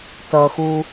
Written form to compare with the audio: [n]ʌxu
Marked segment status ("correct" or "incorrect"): incorrect